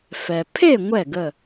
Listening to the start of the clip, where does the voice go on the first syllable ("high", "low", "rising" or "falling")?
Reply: low